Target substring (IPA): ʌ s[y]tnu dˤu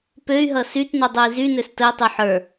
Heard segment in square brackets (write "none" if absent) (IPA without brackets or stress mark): y